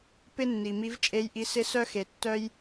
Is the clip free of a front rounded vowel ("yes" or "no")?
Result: no